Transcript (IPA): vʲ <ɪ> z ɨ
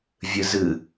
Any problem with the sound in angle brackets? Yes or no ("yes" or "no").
yes